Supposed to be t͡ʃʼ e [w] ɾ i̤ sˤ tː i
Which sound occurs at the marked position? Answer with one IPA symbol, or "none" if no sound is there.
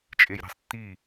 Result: j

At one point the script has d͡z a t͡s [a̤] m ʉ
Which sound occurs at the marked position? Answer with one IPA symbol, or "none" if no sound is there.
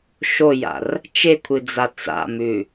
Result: a̰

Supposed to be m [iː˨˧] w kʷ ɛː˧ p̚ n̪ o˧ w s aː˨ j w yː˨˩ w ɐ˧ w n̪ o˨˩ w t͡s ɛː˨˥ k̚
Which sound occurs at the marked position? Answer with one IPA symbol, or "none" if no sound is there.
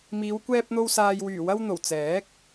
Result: iː˨˧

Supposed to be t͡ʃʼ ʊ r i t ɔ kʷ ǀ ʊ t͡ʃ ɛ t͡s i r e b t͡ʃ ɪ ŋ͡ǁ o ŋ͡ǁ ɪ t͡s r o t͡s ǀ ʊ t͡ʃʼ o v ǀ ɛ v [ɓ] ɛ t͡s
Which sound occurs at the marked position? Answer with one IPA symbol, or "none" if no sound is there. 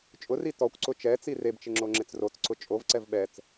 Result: ɓ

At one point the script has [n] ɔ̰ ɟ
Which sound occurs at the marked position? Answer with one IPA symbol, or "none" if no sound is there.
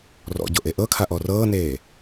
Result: r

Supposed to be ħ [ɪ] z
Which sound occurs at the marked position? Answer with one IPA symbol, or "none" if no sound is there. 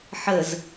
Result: ə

